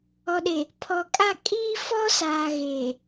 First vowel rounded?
yes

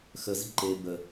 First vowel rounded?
no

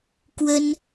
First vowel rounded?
no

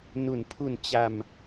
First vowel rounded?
yes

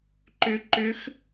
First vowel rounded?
yes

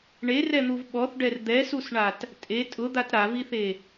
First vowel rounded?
no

